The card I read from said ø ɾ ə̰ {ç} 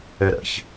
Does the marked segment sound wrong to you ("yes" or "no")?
no